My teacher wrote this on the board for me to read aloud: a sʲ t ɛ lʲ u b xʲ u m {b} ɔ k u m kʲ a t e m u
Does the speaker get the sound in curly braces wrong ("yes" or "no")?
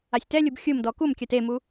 yes